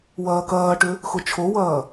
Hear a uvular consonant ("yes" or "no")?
no